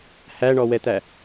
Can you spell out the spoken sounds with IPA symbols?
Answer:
h æ ɳ ɔ w ɛ t̪ æ

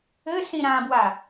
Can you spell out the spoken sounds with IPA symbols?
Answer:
ɘ s ĩ ɾ ã b w a

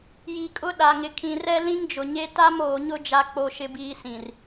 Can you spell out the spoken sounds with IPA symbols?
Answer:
j i˨ kʼ ʊ˦ ɗ a˨ ŋ ɪ˨ kʰ ĩ˨ r ɛ˦ l ĩ˦ ŋ d͡ʒ ʊ˨ ɲ e˦ t a˦ m oː˨ ɲ ʊ˦ d͡ʒ a˦ k͡p o˦ ʃ ɪ˦ b iː˦ s ĩ˨ r

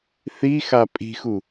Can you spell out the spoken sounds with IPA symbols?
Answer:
θ i x a pʼ i̤ x u

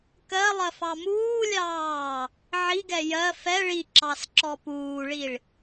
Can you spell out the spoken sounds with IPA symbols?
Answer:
k ɜ lˠ ɜ f ɑ m uː lʲ ɑː | ʕ i ɡ ɛ j ɜ f ɛ ɭ i ǁ ɑ s ǁ ɔ p uː ɭ i ɭ

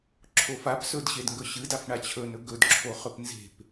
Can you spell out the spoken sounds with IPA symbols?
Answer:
ǁʰ o f a p s ɵ d ɕ e d ŋ ɡ ɵ ɕ ɨ d a f ɳ a t͡ɕʰ ɵ n ɵ ɡ ɵ d ǁʰ o χ ɵ p n z e̤ p

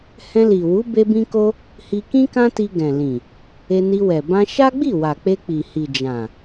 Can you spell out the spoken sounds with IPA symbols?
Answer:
h ɛ̃˧ l i˨ w u˨˦ b e˦ b ĩ˦ k o˦ | h i˧ k ĩ˦ k ã˦ t i˧ ɡ ɛ̃˨ l ĩ˨ | e˧ n i˧ w ɛ˨ b ã˧ ʃ a˦ ɡ͡b i˦˨ w a˨ k͡p e˧ k͡p i˨ h i˨ d͡ʒ ã˨

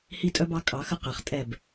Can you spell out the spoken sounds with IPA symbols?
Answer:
h i˦ tʼ œ˦ b ɑ˦ kʼ ɑ˨˦ x ə˦ q ɛ˨ χ tʼ ɛ˦˨ b

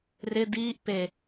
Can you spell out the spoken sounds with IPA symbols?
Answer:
r ɪ d iː ʔ p e

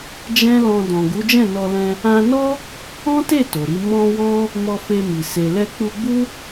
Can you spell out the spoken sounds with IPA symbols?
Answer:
d͡ʒ ɛ̃˦ l ɔ̃˧ d ɔ̃˨ ɡ u˨˦ d͡ʒ ɛ̃˦˨ n ɔ˧ l ɛ̃˧ | ã˧ n ɔ˦ | ɔ̃˦ t e˦˨ t o˨ ɾ i˧ m ɔ̃˧ w ɔ̃˦ | m ɔ˧ f e˧ m i˨ s e˨ l ɛ˧ k͡p u˧ ɡ͡b u˦

